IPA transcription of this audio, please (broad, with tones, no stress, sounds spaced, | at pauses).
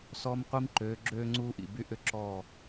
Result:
s ɔ˦ m qʷ i˦ m ǃ øː˨˦ ɡ͡ǁ øː˦ ŋ͡ǀ uː˦ ʔ ḭ˨ b y˦ ʔ ʏ˦ ǁ ɔː˦˨